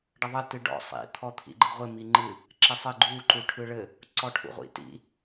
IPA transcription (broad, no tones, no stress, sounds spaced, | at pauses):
ɖ ʌ ðˤ ɘ t ɨ ɖ ɔ̰ sˤ ḭ t̪ʰ ɔ t̪ʰ ḭ ɡ͡ǃ ɯ ʁʷ ɘ m i ŋ͡ǃ ɨ | ǁ ɘ sˤ ɘ ɡ͡ǃ u ǃ u ʈʰ ɯ ɭ ɘ | ǀ ɔ ʈʰ ṵ ʁʷ ḭ t ḭ